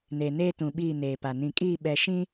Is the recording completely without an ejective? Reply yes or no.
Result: no